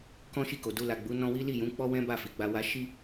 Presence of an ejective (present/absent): absent